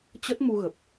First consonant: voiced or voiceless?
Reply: voiceless